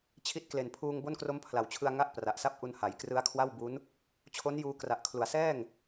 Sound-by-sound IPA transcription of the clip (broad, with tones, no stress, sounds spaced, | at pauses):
t͡ɕʰ i˦˥ t̚ k l e˨˩ n pʰ uː˧ ŋ b o˥˩ n k r o˦˥ m pʰ l a˩˦ w t͡ɕʰ ɯ˧ a̯ ŋ a˥˩ ʔ p r a˨˩ ʔ s a˥˩ p̚ ʔ u˧ n h a˩˦ j k r ɯ˦˥ a̯ kʰ w a˥˩ w b u˦˥ n | t͡ɕʰ o˦˥ n j uː˧ k r a˨˩ ʔ kʰ l u˩˦ a̯ s ɛː˥˩ ŋ